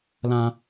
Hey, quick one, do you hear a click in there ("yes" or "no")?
no